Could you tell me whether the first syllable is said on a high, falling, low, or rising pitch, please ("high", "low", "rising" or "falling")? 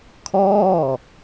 falling